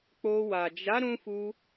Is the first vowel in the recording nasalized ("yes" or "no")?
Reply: no